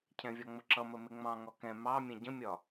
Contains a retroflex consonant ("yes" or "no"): no